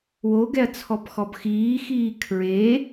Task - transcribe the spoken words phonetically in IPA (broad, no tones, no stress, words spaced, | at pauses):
woɡɛɐ̯ t͡sʰɔpxɔbxiːxiː kʰɹe